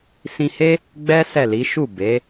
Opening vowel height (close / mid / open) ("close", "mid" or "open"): close